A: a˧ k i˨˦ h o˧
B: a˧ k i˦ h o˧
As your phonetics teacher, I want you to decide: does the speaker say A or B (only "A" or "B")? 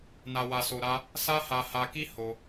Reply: B